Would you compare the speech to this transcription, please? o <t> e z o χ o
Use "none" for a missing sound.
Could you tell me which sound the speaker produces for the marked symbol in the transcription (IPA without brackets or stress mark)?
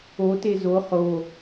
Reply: t